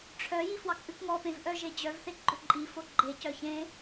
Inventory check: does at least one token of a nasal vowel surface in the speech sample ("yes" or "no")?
yes